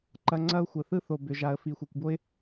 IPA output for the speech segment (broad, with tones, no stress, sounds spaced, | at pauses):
ǃ ɐ˦ ŋ͡ǀ ɐ˦ ʊ̯ xʷ ə˧ θ ɯ˦ θ o˧ b ʏ˧ ʒ a˧ ə̯ f i˧ xʷ e˧ kʷ b o˦ ɪ̯